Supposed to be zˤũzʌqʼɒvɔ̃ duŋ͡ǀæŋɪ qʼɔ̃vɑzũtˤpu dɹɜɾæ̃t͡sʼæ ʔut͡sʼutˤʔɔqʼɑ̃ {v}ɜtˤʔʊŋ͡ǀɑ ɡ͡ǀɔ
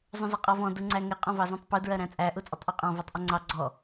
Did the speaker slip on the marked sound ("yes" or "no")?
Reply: no